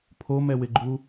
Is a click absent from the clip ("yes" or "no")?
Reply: no